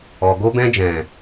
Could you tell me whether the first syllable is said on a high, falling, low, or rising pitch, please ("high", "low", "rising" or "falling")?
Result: low